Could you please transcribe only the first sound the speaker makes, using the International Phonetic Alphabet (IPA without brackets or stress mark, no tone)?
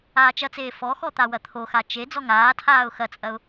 aː